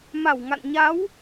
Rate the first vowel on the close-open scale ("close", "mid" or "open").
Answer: open